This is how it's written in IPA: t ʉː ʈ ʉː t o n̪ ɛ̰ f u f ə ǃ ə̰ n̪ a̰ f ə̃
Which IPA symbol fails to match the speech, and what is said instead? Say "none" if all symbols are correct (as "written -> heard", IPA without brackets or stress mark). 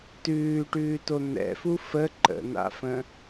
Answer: none